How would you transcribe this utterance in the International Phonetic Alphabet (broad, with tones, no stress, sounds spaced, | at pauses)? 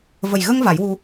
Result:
v ə˨˩ j ɣ ə˧ ŋ v a˨˩˦ j w u˧